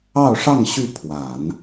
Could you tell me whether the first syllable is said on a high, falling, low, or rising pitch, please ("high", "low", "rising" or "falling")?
falling